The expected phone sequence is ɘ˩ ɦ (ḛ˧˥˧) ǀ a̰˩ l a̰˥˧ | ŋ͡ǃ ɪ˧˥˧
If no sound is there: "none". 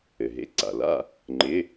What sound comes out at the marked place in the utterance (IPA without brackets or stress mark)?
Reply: ḛ˧˥˧